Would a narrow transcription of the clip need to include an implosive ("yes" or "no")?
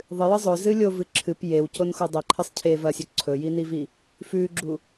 no